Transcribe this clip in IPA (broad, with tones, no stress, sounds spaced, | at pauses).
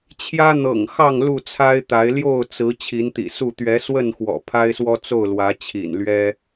t͡ɕʰ j ä˦ n̪ ɤ̰˨˩ ŋ x ɑ˥˨ ŋ l u˥˨ t͡sʰ a˦ ɪ̯ t̪ a˨˦ ɪ̯ l j o˥˨ ʊ̯ t͡s ɹ̩˨˦ t͡ɕʰ i˨˦ n t̪ ḭ˨˩ s u˥˨ t̪ ɥ ɛ˨˦ s w ə˥˨ n x w ɔ̰˨˩ pʰ a˦ ɪ̯ s w ɔ˦ t͡s o˥˨ ʊ̯ l w ä˨˦ t͡ɕʰ ḭ˨˩ n l ɥ ɛ˦